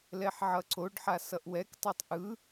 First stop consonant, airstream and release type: click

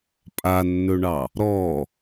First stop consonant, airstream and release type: ejective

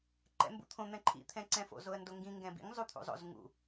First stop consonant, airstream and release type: click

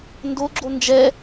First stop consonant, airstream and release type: plain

